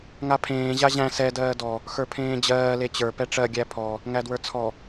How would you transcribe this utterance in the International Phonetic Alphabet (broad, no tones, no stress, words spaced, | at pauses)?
ŋapʰẽː ʑaʑæ̃ sɛ dɜːdɔ | xə˞pʰẽːd͡ʑɜː let͡ɕə˞ pɛʈ͡ʂɜ ɡʲæpʰɔ | ŋædwə˞t͡sʰɔ